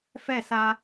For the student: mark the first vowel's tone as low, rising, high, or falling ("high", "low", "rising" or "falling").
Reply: falling